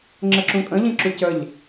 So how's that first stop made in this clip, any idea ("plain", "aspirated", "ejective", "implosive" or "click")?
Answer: click